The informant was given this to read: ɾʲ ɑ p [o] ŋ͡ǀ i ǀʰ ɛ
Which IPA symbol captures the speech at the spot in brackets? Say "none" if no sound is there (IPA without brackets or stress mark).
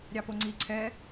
o